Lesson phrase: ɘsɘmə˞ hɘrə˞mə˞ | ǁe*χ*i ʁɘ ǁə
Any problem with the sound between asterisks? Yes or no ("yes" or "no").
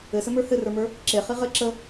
no